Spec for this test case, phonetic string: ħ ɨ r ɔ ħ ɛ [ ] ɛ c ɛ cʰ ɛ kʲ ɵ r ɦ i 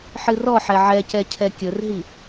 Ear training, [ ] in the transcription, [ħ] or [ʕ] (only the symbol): ʕ